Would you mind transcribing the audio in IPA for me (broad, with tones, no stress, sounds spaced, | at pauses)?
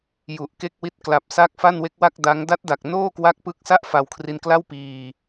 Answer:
j u˨˩ ʔ k e˥˩ k̚ w i˦˥ t̚ k l a˨˩ p̚ s a˦˥ k̚ f a˥˩ n w e˦˥ k̚ w a˥˩ k̚ d a˦˥ ŋ d a˦˥ t̚ d a˨˩ k̚ n oː˥˩ k w a˦˥ k̚ p ɯ˦˥ k̚ s a˥˩ ʔ f a˧ w kʰ r i˧ n k l a˥˩ w p iː˧